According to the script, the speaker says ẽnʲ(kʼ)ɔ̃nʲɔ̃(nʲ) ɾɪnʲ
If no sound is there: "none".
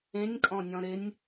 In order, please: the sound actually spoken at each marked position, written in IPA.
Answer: kʼ, none

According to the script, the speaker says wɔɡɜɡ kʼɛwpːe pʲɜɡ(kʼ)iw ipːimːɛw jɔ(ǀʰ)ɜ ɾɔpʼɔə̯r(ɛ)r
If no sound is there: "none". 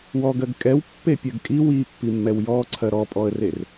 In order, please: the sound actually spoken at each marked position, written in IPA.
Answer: kʼ, ǀʰ, e

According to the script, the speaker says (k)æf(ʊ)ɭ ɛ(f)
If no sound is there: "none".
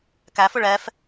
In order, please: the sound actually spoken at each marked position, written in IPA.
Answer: k, ʊ, f

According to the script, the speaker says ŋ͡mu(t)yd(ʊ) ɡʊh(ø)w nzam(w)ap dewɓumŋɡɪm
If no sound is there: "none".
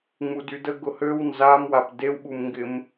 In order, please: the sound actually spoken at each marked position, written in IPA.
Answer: d, ə, ø, w

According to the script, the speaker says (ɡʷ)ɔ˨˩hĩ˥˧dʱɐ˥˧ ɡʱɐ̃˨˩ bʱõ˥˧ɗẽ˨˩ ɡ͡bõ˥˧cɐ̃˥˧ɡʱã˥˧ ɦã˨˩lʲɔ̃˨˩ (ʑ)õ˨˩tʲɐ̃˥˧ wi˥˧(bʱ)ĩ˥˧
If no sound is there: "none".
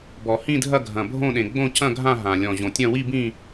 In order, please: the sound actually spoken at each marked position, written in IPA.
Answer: b, ʑ, b

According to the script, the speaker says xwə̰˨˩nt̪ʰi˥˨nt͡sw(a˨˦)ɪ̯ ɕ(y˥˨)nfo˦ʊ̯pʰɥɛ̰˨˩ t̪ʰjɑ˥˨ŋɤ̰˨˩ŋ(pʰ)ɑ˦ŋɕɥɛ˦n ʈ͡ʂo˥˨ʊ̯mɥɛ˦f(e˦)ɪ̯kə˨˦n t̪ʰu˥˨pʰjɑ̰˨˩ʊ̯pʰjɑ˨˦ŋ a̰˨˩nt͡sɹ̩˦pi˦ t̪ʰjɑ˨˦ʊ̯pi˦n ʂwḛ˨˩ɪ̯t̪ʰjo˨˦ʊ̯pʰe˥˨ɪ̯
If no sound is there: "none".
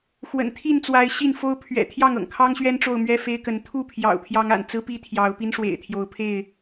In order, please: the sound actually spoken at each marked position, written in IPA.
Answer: a˨˦, i˥˨, kʰ, e˦

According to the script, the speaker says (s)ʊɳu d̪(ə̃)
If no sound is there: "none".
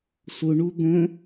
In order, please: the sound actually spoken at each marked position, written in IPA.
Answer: s, ə̃

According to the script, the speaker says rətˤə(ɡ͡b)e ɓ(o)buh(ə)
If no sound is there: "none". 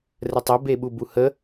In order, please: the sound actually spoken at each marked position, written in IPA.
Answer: b, u, ə

